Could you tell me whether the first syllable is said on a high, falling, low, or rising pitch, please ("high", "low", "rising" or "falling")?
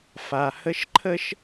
low